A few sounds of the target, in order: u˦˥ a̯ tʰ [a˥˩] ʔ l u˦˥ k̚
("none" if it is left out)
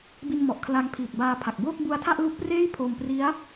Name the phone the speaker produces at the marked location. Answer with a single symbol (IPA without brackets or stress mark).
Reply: a˥˩